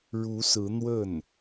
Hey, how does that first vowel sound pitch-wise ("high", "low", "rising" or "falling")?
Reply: rising